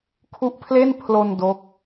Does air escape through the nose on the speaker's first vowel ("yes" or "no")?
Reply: no